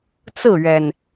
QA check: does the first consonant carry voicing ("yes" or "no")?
no